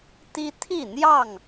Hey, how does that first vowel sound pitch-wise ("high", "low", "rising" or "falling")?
high